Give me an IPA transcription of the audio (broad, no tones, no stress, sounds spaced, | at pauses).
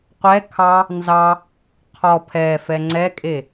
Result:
qʷ ɛ kʰ ɑ | n z ɑ | qʰ ɔ pʰ ɛ f ɛ ŋ͡ǀ ɛ kʼ e